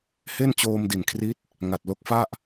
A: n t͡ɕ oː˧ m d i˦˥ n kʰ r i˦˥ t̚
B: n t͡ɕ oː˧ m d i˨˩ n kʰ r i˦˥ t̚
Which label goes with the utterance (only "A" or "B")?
B